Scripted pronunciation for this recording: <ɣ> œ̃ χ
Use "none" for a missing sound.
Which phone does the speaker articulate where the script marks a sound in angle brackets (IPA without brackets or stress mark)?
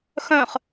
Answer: x